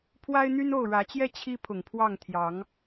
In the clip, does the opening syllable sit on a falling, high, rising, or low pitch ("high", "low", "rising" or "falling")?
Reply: high